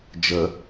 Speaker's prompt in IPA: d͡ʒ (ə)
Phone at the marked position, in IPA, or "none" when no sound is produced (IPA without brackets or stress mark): ə